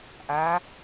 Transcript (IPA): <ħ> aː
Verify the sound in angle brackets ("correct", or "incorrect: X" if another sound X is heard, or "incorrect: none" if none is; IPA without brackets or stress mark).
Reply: incorrect: ʔ